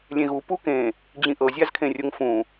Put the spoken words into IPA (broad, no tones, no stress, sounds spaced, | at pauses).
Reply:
lʲ ẽ ɣ u p u k ẽ | d͡ʑ ĩ ʔ ɤ zʲ a z kʰ ẽ rʲ o ŋ f ũ